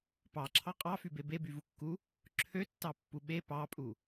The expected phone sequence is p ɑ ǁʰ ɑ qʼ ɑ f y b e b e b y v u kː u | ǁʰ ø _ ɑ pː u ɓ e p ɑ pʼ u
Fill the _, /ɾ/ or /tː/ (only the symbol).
tː